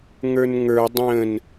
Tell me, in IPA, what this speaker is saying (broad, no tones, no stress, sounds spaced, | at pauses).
ŋ ə˞ n ŋ ə˞ dˤ ə̃ n